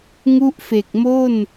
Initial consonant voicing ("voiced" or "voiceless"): voiced